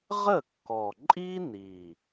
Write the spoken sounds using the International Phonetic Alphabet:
ʁə˥˩kːɔ˨˩ ǃʼi˥ni˨˩

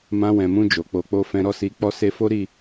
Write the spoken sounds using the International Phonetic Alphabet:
mã˧wɛ̃˨mũ˧ d͡ʒo˨k͡po˧k͡po˦fɛ̃˦ ɾɔ˦si˧ k͡pɔ˦se˦ fo˦ɾi˦˨

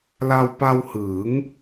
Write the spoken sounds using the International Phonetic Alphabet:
la˧wpa˧whɯː˩˦ŋ

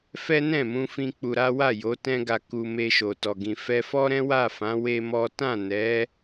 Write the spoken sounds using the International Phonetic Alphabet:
fɛ˦nɛ̃˦˨mũ˧fĩ˧ k͡pu˧ ɾa˦ wa˦˨ jo˨˦ tɛ̃˦ɡa˧ ku˧ me˧ʃo˨tɔ˨ɡĩ˨ fɛ˧fɔ˦ɾɛ̃˦ wa˦˨ fã˨˦ we˦mɔ˦ tã˦˨nɛ˨˦

